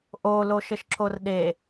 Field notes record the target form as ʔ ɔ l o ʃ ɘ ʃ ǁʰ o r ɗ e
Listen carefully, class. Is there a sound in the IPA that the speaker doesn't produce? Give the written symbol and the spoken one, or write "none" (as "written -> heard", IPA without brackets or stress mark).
ɔ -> o